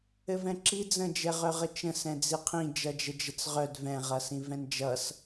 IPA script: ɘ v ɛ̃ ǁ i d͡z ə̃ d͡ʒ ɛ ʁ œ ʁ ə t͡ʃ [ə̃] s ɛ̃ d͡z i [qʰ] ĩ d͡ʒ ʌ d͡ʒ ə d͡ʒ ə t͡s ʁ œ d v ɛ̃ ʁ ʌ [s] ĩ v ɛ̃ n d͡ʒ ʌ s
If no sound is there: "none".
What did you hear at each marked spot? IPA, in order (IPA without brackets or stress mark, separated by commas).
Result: ə̃, qʰ, s